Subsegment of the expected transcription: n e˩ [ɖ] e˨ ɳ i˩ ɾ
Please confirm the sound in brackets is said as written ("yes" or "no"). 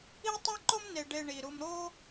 yes